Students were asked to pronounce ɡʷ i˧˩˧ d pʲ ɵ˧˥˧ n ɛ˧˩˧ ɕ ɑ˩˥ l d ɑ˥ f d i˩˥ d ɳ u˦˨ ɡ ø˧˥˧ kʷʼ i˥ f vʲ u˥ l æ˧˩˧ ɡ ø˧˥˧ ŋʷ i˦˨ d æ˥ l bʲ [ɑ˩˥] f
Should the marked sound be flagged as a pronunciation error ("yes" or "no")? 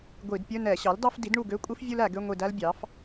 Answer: no